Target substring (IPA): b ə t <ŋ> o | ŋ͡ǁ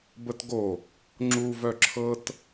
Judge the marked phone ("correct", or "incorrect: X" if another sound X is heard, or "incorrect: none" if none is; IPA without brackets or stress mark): incorrect: ɡ